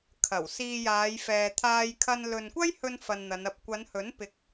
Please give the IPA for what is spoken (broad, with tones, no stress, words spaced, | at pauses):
kʰɐ˨˩w siː˧jaː˨˧j fɛː˨t̪ʰaː˧jkʰɐ˧n lɵ˨nkʷɐ˥jhɵ˧n fɐ˧nn̪ɐ˨˧nɐ˧p̚ kʷɐ˨˧nhɵ˨˥n pɪ˧k̚